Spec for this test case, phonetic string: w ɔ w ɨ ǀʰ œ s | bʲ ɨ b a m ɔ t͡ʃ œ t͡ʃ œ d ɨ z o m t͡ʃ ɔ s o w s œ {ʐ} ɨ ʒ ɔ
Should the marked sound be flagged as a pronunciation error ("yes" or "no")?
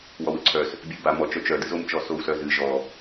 yes